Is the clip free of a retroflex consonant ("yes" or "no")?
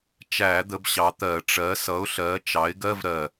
no